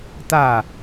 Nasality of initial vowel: oral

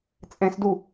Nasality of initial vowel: nasal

